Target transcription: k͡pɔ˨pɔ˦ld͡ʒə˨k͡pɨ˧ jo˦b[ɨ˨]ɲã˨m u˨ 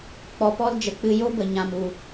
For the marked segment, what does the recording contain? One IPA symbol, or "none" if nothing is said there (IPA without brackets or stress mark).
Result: ə˨